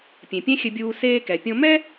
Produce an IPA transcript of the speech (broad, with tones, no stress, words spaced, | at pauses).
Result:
pʲẽ˩pʲɛ̃˥xʲɘ˧bʲuː˧ seː˧kɛ˩pʲõ˧ mɛ˥